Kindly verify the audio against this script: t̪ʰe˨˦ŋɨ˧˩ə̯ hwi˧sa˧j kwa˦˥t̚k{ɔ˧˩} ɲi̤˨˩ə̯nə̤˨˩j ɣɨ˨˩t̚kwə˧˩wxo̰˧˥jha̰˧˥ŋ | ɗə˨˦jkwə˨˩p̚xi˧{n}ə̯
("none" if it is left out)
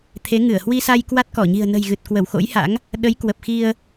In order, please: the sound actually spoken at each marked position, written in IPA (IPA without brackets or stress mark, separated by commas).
ɔ˧˩, none